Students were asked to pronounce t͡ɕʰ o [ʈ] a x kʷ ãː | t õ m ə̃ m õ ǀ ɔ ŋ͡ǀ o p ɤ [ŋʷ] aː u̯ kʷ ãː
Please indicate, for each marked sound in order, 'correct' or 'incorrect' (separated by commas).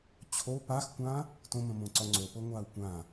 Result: incorrect, correct